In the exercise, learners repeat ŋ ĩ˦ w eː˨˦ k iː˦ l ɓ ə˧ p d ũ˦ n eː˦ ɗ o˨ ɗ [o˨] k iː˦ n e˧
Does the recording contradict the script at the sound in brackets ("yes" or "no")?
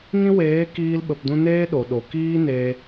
no